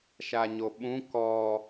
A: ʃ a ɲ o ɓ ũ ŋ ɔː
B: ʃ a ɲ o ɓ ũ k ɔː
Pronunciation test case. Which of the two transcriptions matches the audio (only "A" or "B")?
B